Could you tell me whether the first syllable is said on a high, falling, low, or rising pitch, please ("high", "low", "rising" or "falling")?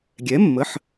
rising